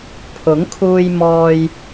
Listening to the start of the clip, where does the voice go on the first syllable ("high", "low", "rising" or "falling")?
rising